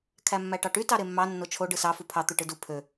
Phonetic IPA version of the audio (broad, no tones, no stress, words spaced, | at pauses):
kʰæmːæʈɑʈy tɑɾemːɑ nːot͡ʃʰo ɖɯsɑ fupʰɑ t̪uʈɯdu pʰø